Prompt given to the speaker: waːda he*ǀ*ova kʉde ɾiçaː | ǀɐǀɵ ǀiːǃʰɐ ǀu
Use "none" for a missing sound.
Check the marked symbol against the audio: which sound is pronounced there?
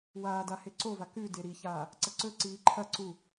ǀ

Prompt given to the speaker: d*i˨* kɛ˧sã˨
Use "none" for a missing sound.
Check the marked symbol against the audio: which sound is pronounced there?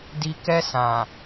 i˨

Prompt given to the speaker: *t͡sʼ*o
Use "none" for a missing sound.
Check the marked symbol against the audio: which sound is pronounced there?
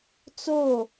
t͡s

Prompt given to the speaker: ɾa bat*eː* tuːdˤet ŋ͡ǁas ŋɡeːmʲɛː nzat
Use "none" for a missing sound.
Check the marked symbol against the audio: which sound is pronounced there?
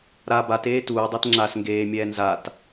eː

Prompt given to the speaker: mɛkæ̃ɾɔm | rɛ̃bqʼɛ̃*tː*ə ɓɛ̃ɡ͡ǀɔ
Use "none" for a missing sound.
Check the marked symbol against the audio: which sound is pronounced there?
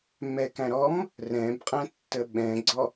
tː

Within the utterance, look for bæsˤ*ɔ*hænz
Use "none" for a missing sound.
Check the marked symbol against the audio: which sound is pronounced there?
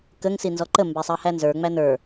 ɑ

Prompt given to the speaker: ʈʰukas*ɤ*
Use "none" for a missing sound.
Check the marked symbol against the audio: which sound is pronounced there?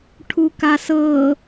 ɤ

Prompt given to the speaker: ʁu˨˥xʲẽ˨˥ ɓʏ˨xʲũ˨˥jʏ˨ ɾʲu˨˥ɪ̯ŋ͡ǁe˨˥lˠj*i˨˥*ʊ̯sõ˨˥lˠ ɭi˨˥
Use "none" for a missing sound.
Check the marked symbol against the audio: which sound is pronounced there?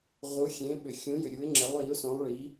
i˨˥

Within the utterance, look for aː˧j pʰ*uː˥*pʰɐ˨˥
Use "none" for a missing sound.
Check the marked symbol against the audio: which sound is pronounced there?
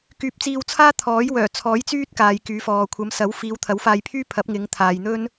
yː˥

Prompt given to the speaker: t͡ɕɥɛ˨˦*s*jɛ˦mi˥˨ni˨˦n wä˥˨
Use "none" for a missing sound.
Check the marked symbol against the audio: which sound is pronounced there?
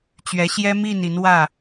ɕ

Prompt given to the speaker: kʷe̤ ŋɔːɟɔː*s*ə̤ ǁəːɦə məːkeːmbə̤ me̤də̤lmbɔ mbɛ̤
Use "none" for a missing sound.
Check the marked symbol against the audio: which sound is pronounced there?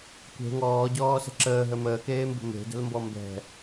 s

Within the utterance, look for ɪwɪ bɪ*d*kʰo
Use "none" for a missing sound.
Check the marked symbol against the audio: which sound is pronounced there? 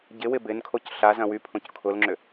n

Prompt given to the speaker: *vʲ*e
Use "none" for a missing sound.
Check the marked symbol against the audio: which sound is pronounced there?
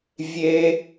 vʲ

